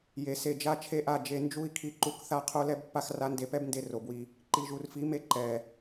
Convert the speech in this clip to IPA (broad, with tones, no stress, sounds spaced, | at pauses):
j e˨ s e˨ d͡ʒ a˧ t͡ʃʰ e˦ ʔ a˦˨ d͡ʒ e˧ n d͡ʒ u˧ i̯ kʰ i˧ ǃ u˧ k θ a˦ qʰ o˦ l ɛ˦ b pː a˦ x r a˦ n d e˧ p ɛ˦ b n d e˧ r o˨ b w i˧ | ǃ i˨ ʒ u˨ r f i˨˦ m e˧ ǃ ɛ˨